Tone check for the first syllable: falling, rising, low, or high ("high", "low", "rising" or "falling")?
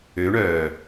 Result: rising